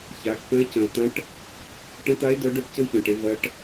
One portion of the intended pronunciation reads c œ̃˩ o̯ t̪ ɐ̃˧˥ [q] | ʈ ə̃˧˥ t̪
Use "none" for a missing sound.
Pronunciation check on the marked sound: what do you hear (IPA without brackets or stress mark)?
ʈ